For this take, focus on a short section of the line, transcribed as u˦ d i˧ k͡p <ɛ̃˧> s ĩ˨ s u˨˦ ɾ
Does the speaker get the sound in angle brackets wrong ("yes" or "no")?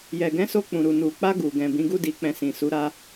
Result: no